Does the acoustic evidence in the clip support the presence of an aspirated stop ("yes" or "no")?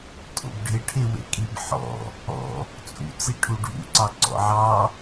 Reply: yes